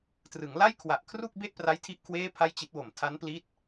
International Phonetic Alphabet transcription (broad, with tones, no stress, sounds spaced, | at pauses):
t r ɯ˩˦ ŋ l a˥˩ j kʰ w a˨˩ ʔ kʰ r u˥˩ k̚ b e˥˩ ʔ p r a˦˥ j tʰ i˦˥ ʔ kʰ w eː˥˩ pʰ a˥˩ j t͡ɕ i˦˥ t̚ w o˨˩ m tʰ a˦˥ n p l i˦˥ t̚